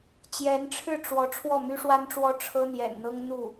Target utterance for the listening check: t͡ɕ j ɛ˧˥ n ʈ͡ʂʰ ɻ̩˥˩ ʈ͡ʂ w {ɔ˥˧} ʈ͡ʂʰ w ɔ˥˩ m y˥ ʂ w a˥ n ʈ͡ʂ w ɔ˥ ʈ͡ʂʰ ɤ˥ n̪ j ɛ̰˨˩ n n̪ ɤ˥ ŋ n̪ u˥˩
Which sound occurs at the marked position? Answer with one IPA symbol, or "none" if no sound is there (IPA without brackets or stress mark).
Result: ɔ˧˥